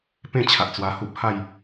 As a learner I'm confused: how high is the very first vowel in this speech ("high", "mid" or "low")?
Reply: mid